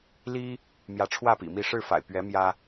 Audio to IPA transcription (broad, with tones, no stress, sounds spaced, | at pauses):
l i˦ | m j ä˨˦ ʈ͡ʂʰ w ä˥˨ p ḭ˨˩ m i˥˨ ʂ ɻ̩˥˨ f a̰˨˩ ɪ̯ p ɥ ɛ˨˦ m j ä˦